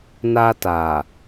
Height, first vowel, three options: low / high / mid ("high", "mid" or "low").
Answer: low